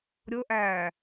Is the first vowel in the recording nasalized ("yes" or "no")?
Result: no